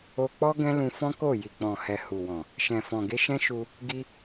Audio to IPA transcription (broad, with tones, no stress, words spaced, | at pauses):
o˧k͡pɔ˦ ɡɛ̃˦lũ˧fɔ̃˦ko˦˨ ji˨k͡pɔ̃˨ hɛ˨hu˨wɔ̃˨ | ʃɛ̃˨fɔ̃˨ɡe˧ʃɛ̃˦ ʃu˧ | ɡi˧